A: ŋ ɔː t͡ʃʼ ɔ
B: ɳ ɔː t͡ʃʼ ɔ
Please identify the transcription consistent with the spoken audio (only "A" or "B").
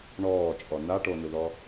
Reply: B